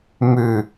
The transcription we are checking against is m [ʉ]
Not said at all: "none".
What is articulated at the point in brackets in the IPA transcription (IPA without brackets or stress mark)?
ʉ